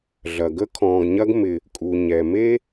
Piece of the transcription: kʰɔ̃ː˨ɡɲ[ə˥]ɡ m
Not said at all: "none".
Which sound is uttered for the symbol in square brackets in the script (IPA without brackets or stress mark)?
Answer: ɐ˥